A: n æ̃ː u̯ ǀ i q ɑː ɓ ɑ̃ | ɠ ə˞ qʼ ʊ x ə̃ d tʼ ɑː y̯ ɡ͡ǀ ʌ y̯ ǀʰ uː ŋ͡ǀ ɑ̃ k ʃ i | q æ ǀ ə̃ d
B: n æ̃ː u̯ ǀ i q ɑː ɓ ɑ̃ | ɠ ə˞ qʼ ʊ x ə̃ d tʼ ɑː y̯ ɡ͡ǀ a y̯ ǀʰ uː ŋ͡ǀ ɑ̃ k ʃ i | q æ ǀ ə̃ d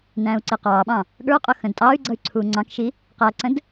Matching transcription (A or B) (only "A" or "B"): A